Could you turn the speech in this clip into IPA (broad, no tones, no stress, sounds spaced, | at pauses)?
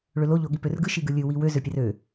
ɭ ø l o ʎ o ɠ i p ø r ɡ ɯ ʃ i ɡ ɯ lʲ ɯ w i w ø z ø pʲ ɛ r ø